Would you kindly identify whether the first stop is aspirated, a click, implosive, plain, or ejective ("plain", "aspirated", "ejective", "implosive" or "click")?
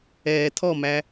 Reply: aspirated